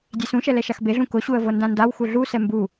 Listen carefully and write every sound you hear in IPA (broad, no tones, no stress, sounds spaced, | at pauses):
dʲ e s ũ ʃ ɛ l ɛ ʃ a x b e ɮ ũ k ʊ ɕ u ə̯ v ɤ n d ã n d a w x u ɮ u s ɛ m b u